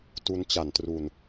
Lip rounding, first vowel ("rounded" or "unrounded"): rounded